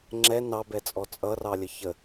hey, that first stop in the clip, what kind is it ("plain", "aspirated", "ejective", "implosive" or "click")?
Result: click